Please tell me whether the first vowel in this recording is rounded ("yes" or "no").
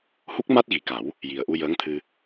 yes